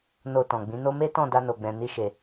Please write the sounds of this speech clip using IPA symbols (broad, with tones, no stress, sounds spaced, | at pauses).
n o˧ t ɔ̃˨ ɡ͡b ĩ˨˦ n o˦ m e˦ t ɔ̃˦˨ d a˧ n o˨ ɡ͡b ɛ̃˨ n i˧ ʃ e˨